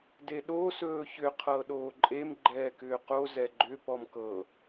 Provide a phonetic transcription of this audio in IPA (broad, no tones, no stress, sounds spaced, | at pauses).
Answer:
d e ɗ o s ɵː ç ʏ qʰ ɤː ɗ oː ǃʼ e m ɡ͡ǃ ɛː k ʏː q o z ɛ ɡ͡ǃ ʏ p ɔ m k ɤ